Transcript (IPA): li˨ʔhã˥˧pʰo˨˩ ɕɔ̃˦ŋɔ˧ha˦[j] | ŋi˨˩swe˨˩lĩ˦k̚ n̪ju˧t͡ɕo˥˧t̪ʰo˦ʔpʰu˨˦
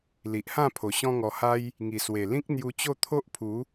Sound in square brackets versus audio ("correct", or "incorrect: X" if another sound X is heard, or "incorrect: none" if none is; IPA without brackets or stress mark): correct